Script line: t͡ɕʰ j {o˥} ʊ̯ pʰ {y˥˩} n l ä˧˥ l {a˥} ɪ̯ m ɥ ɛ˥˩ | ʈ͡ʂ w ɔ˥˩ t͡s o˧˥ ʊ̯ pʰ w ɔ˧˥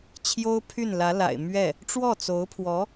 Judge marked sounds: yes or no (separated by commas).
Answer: yes, yes, no